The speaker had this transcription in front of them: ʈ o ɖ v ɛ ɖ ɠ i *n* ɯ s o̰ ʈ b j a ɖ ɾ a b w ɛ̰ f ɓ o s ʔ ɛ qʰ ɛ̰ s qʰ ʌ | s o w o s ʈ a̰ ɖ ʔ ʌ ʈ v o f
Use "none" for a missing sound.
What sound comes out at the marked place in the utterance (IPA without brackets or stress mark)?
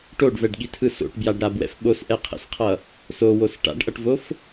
tʰ